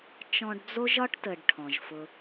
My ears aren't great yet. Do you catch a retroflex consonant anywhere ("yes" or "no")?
yes